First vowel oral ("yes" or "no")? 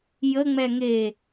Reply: yes